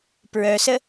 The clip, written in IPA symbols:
p ɹ œ s ə

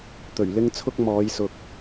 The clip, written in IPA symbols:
t̪ ɵ˨˩ ɥ l ɪ˥ ŋ t͡sʰ ʊ˥ k̚ m ɔː˨˧ j s ʊ˨ k̚

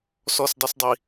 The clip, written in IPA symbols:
s ɔ s dˤ ɛ s dˤ i

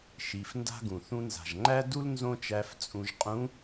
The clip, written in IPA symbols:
ʃ i˩˧ f n d a̤˥ ɡ ũ˩ θ ũ˧ n z a̤˩ ʒ ŋ͡ǃ æ˥ d u˥ l n z õ˥ t͡ʃ æ˧˥ f t͡sʼ ũ˧ ʒ qʼ ũ˧˥

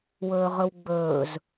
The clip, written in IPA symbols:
w ɵː ʁ ɵ w ɡ͡b ɵː z

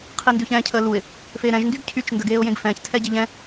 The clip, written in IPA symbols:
qʰ i n d ʉ ç ɛ̃ː cʰ əː l u ɪ̯ | f eː ɾ ɛ̃ ʒ n d y ɡ cʰ y t͡ʃ n d ə ɡ eː ʊ̯ j ẽ ɡ f ɛ̃ː ç tʰ ɛ ɟ e ʎ ɛ̃

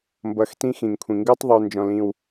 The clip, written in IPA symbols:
m b ʌ˨ x t ĩ˦ x ĩ˩ ŋ kʷʰ ĩ˩ ŋ ɡ u˥ tˤ ðˤ u˨ n d͡ʒ ɔ̃˨ l ĩ˨ w

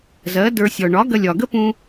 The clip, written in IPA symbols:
z ɜ˩˥ d ə˞˧ sʲ ɔ˩ ɳ ɒ˩˥ ɡ ɐ˧ lʲ ɒ˩ ɡ ə˥ p ũ˧

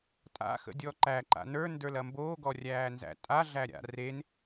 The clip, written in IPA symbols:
tʼ a̰ x ə̰ dʲ ɔ ǃ æ ǃ a̰ n ə˞ n d ə˞ l ɐ m b oː ɡ ɔ rʲ æː n z æ̰ tʼ a ɮ æ ɾʲ a̰ r e n

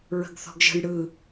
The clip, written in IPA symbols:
ɹ ə̤ ɡ θ ɔ̤ ɡ ʒ ə̤ j ɽ ɯ

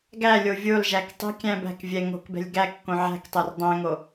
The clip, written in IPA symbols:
ɡ æ lʲ o vʲ o l ʒ æ k tˤ e̤ kʲ æ̃ b æ̤ k vʲ ɛ ŋ o̤ k b ɛ̤ lʲ ɡ æ kː õ ʕ æ̤ k tˤ ɛ r dˤ æ̃ ŋ o

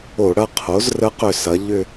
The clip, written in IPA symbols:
o˧˩˧ ɽ ɐ˥˧ qʰ o˩˥ z r ə˧˥ q ʏ˧˩ s ɐ˩˥ ʎ ʏ˥˧

